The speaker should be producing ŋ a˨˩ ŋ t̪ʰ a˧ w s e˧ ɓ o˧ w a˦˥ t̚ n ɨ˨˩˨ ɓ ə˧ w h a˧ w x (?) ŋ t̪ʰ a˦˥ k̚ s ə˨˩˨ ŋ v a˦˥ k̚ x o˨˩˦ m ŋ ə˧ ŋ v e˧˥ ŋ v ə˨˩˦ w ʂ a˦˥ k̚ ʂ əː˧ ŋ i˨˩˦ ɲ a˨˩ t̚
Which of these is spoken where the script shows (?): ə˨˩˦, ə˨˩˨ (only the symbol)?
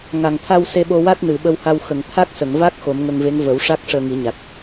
ə˨˩˨